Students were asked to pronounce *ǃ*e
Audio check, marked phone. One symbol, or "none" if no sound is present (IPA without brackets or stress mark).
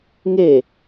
ŋ